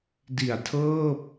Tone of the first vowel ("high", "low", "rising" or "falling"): low